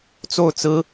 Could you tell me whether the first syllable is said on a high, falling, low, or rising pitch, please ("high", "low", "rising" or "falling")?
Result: falling